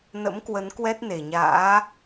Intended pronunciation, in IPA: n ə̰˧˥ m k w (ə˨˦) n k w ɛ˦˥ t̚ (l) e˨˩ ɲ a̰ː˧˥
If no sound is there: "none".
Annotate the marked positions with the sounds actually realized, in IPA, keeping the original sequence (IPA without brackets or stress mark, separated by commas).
ə˨˦, n